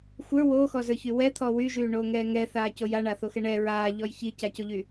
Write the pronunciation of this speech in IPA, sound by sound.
xʷ ə˞ w oː x ɔ z ə˞ ç y w ɛ t̪ʰ ɔ w y ʒ yː ɳ oː ŋ ɛː ŋ ɛ θ aː c o j a ɳ a θ o x ɛ ɳ ɛ ɹ aː ʎ ɔ j ç i c a c o ʎ y

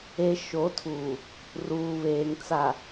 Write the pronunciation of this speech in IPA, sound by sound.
e˨ ʃ o˨˦ tʰ uː˨ | r uː˨ β eː˨ ŋ t͡s a˨

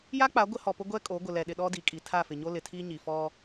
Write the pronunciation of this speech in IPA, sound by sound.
j a˦ k͡p a˨˦ ɡʷ ɪ˦ h ɔ˨ p ʊ˦ ɡʷ ɛ˦ kʼ o˨˦ ɡʷ ɪ˨ l ɛ˨ ɗ ɪ˨ ɗ ɔ˦ d i˨ kʼ i˨ tʰ a˦˨ f ɪ˨ ɲ o˦ l ɪ˨ tʰ i˦ ɲ i˨ f ɔ˦

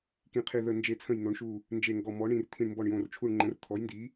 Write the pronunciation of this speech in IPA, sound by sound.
k ĩ˧˩ qʰ i˧˩ ð ə˧˩ n d͡ʒ e˧˩ t͡sʰ ə̃˧˩ j n o˩˥ ɳ ʃ u˧˩ | n d͡ʒ e˧˩ ŋ ɡ ɔ˧˩ m ɔ˩˥ ɳ ĩ˧˩ r t̪ʰ ĩ˧˩ ɳ m b ɔ˧˩ ɳ j õ˧˩ r t͡ʃʰ u˧˩ ɳ ŋ͡ǃ ə̃˩˥ r t̪ʰ ɔ˩˥ j n d i˩˥

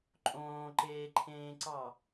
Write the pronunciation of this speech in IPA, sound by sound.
ǃʼ õː ǃ eː ǃʰ ẽː ǀ ɑ

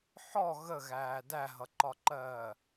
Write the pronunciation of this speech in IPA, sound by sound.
ħ ɔ ɣ ə ɣ æː d æ ɦ ʌ ǃ ɒ ǃ ɜː

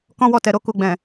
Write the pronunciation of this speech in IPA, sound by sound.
k ɔ̃˦ w ɔ˦˨ t ɛ˨ ɾ o˧ k u˨ ɡ͡b ɛ̃˨

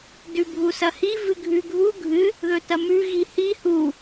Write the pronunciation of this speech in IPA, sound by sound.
d ʉ bʱ u s ɐ h i v ɨ ɡʱ ʉ ɡʱ u ɡʱ ɨ | ð ɵ t ɐ m ʉ ɣ i h i h u

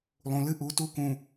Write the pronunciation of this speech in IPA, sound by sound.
lˠ ũ˨ l ɨ˦ ʔ u˨˦ t u˦ k ũ˨

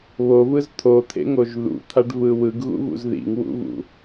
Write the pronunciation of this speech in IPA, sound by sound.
β o v ɯ z t̪ʰ o t̪ʰ ḛ ŋ o ʒ ð ṵ t̪ʰ a ɖ v ɯ w ɯ ɡ ɣ ṵ v ṵ z ð ḭ ŋ w ṵ v ṵ

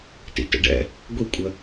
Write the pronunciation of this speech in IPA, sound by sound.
t ḭ t ə̰ ɖ ɛ̰ | ɡʷ i kʷʼ ə

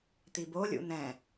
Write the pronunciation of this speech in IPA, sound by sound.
t̪ i b o lʲ ṵ n̪ ɛ̃

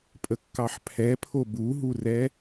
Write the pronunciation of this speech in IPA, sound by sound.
pʼ ə kː ɑ ħ pʰ ɛ pʰ o b u ɦ u r ɛ

